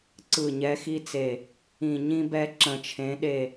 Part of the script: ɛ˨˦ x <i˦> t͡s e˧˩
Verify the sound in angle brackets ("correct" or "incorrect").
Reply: correct